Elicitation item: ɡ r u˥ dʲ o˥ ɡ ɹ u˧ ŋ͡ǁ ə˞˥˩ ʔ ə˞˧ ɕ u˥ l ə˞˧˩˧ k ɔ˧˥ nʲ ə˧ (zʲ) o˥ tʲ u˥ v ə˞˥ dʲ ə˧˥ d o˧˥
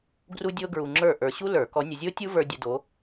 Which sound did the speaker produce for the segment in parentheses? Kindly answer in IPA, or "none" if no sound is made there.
zʲ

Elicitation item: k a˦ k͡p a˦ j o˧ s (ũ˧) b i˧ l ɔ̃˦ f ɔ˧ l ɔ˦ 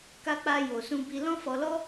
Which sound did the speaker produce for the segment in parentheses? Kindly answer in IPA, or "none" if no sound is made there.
ũ˦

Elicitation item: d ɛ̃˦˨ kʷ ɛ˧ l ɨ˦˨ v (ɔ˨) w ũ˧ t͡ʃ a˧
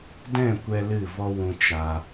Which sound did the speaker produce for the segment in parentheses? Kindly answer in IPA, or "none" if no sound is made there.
ɔ˦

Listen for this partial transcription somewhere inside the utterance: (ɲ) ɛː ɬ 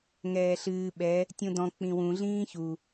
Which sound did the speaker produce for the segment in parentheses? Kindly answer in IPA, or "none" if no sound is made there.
ŋ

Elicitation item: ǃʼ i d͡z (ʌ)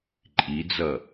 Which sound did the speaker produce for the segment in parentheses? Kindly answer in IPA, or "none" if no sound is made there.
ʌ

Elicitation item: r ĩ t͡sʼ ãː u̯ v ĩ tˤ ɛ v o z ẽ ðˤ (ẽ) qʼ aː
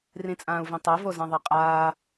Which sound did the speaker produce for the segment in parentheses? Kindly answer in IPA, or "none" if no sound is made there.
e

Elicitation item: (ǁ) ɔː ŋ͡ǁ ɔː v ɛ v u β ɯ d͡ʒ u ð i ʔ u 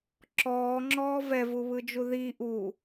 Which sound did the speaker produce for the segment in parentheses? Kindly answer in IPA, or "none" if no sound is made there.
ǁ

